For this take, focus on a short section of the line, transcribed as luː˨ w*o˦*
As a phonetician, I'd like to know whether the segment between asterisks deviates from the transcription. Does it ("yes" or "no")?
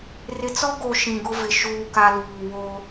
no